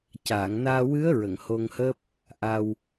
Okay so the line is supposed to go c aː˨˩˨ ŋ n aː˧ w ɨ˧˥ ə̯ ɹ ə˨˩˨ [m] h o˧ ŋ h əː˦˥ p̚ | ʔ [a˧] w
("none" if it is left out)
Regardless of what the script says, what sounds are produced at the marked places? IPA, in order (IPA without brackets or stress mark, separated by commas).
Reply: ŋ, a˧